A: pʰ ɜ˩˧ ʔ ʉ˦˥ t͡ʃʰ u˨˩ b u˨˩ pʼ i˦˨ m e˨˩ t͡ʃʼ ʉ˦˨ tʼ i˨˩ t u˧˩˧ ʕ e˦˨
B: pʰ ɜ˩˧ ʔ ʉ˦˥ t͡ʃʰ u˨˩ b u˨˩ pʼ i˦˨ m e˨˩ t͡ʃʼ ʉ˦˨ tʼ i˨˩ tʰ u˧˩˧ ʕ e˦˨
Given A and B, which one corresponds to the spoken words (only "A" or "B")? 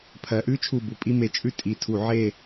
B